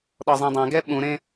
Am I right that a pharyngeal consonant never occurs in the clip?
yes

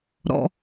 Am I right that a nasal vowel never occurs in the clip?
yes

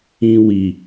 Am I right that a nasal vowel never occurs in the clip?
no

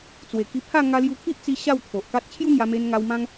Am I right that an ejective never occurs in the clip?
yes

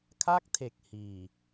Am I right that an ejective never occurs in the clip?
yes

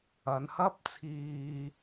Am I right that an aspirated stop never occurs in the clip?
no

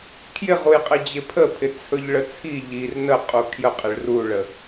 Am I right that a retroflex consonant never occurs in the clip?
no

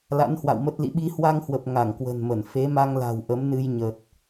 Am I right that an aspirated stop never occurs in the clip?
yes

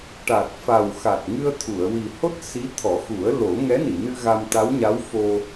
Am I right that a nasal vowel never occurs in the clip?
yes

